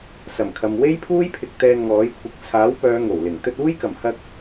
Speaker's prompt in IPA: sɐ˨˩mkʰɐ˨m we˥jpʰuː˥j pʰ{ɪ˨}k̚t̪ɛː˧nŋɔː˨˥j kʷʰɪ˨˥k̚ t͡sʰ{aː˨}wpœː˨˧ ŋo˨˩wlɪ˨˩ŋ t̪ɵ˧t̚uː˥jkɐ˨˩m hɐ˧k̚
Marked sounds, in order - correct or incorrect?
incorrect: ɪ˧, incorrect: aː˨˥

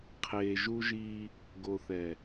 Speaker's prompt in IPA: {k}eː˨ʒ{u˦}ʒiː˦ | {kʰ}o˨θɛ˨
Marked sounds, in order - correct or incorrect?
incorrect: qʰ, correct, incorrect: ɡ

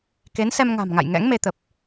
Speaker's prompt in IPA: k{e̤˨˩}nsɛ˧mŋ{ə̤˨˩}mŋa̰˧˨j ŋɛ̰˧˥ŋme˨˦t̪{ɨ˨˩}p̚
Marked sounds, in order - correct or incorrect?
incorrect: e˨˦, incorrect: a̤˨˩, incorrect: ə˨˩

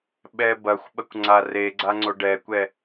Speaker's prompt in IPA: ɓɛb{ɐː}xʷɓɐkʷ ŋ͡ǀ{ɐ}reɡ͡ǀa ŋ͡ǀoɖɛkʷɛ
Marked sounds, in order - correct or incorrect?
incorrect: ɐ, incorrect: a

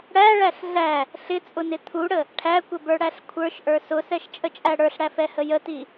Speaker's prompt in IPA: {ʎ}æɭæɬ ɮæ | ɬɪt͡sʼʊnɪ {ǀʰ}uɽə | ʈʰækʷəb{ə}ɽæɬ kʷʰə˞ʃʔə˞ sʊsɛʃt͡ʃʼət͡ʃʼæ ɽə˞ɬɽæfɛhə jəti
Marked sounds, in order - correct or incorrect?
incorrect: ɽ, incorrect: t̪ʰ, incorrect: ə˞

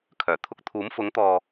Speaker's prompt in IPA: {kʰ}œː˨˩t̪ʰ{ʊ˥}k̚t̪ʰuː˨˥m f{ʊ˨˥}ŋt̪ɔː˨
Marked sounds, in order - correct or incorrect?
correct, incorrect: ʊ˧, correct

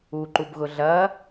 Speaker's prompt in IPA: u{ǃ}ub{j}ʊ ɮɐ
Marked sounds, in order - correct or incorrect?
correct, incorrect: ɣ

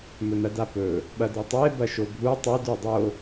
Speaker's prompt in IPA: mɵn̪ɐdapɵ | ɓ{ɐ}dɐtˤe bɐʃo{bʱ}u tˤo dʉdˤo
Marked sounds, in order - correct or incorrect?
correct, correct

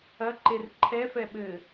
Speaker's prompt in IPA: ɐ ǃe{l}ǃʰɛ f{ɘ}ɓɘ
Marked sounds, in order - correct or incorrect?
incorrect: r, incorrect: ɛ

